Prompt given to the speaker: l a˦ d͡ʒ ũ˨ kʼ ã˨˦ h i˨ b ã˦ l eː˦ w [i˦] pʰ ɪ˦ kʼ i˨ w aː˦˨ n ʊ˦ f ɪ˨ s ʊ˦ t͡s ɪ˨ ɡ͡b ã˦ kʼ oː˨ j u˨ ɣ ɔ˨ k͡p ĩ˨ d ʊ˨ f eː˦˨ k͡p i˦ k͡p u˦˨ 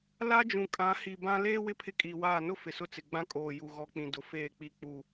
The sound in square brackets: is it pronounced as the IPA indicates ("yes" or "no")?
no